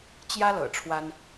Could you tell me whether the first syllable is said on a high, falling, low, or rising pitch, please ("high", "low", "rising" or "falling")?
high